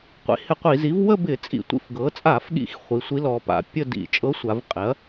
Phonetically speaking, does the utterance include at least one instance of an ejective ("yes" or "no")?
yes